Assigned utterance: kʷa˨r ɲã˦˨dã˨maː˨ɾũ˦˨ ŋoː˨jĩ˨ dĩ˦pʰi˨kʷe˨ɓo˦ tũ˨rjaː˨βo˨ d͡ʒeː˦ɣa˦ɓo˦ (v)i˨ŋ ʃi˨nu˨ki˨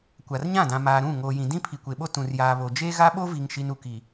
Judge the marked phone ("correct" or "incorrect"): correct